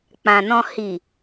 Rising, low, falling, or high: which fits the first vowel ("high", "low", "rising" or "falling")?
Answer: low